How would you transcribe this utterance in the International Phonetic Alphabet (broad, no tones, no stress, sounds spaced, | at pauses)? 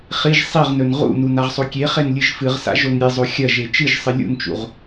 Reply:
χ i ʒ sˤ i ʁ n ɵ n ʁ ṵ n u n a ʁ sˤ o kʲ e χ e n lʲ ɨ ʒ f ɨ ʁ s a̰ ʒ o n ɾʲ e zˤ o xʲ ɐ ʒ e t͡ʃ ɨ ʒ sˤ ɨ lʲ ṵ n t͡ʃ ṵ ʁ